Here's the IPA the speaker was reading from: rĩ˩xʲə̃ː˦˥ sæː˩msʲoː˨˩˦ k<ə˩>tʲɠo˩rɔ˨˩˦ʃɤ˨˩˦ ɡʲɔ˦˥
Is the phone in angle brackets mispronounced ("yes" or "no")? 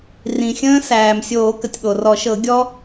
no